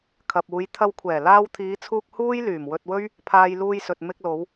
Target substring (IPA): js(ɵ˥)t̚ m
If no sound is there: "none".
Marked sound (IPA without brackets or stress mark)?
ɵ˨